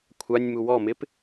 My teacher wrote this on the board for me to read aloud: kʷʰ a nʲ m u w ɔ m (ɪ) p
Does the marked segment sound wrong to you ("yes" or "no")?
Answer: no